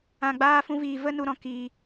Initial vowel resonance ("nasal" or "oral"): nasal